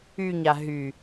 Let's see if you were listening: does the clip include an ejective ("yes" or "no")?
no